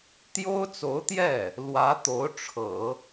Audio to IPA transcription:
t̪ j o˥ ʊ̯ t͡s o˧˥ ʊ̯ t̪ j ɛ˥˩ | l w ä˧˥ t̪ o˧˥ ʊ̯ ʈ͡ʂʰ ɤ̰˨˩˦

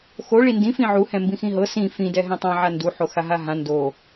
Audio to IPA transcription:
x o ɭ i n d ĩ f ĩ ʕ u h ɛ̃ m b ĩ x ĩ ɦ ɤ s ĩ f ĩ d ɛ ɦ ɛ̃ tˤ ã ʕ a n d u ħ o x a ɦ a ɦ ã n d o

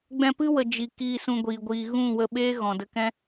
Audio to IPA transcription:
ɡ͡b ɛ̃˧ p ɨ˦ w ə˨ d͡ʒ i˨ k iː˧ s ũ˧ ɡʷ iː˨ ɡʷ iː˨ ɣ ũ˦˨ w ə˧ ɓ eː˦ ɣ ɔ̃˨ d ə˧ k ɛ̃˦

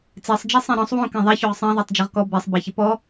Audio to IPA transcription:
t͡s e sˤ d͡ʒ e sˤ ẽ ɾ ɔ̃ sˤ w õ k ẽ ðˤ ɛ ç o ʁ sˤ ẽ ðˤ o tˤ d͡ʒ ɤ ʁ k ɔ b ɛ sˤ b a ç ɪ p ɔ

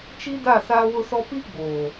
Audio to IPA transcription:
t͡ʃ i˦ d a˦˨ s aː˦ w ʊ˦ s ɔ˦ p i˦ ɡ͡b oː˨

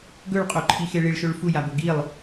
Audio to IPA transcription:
ɡ ɵ ɭ qʼ o ǃʰ i x e ɭ i ɭ ʃ ɵ ɭ f u j a b ɵ ɡ i lˠ

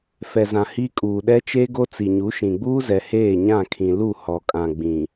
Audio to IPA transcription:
f ɛ˨ z ã˨ h iː˦ kʼ uː˨ ɗ ɛ˦ t͡ʃ e˦ ɡ o˦ t͡s i˨ ɲ u˨˦ ʃ ĩ˨ ɡ͡b uː˦ z ɛ˨ h eː˦˨ ɲ ã˦˨ kʰ ĩ˨ l u˦˨ h ɔ˨ kʼ ã˨ ɡ͡b ĩ˨

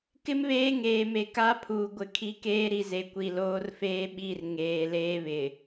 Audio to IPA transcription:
k ɪ˦ m β eː˦ ŋ eː˨ m e˨ k a˦ pʰ uː˨ ɡʷ ɪ˨ kʰ i˦ k eː˦ ɾ i˨ z e˨ kʷ i˨ l oː˦ r f eː˦ ɓ i˦˨ r ŋ eː˨ l eː˦ β ɪ˨

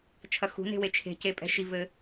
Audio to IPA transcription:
t͡ʃʰ ɐ x ṳ n e̤ w e t͡ʃʰ e̤ c e pʼ ɛ̤ ʃ i v ɘ

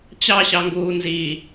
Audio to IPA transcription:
t͡ɕ ɑ ɕ ɑ ŋ ɡ uː n z i

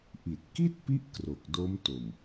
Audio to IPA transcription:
ʔ i˨˩ t̚ k i˥˩ t̚ p i˦˥ ʔ k r o˨˩ k̚ d o˦˥ m t o˨˩ m

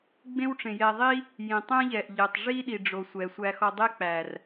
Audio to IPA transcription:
ɡ͡b ẽ˦ w ʈ͡ʂ ẽ˨ j ɛ˧ ðˤ i˦ | j ĩ˨ tˤ ɛ̃˦ ʎ ɛ˨ ʔ ʎ e˨ tˤ ʐ i˦ ɗ i˨ ɖ͡ʐ o˨ sʷ ɛ˨ sʷ æ˧ x ɔ˧ dˤ e˦ k͡p æ˨ r

